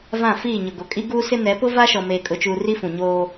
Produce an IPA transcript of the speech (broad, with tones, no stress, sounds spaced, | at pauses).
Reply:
v ã˦˨ f iː˦˨ ɲ ʊ˨ ɡ o˨ kʼ i˦ ɡ uː˦ s ɪ˦ n ɛ˨˦ p ʊ˦ v a˦ ʃ ɔ˨ m eː˨ kʼ ʊ˨ t͡ʃ uː˨ r i˦ f ũ˨ ɲ oː˦